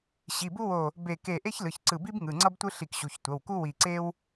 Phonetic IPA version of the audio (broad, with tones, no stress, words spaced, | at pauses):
ɕi˩˧˩bu˥wo˧˩ | be˧˩ke˧˩ ʔe˥çlɯ˩˧˩çǀɯ˧˩bi˥b ŋɯ˩˧˩ŋ͡ǀʌ˥btʷɯ˥ ɬi˧˩kɕu˩˧˩çtʷʌ˩˧˩wku˥ wi˧˩ǀe˥w